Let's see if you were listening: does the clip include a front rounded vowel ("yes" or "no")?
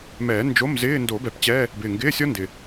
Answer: no